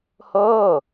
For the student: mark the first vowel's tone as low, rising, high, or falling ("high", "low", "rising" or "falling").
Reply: falling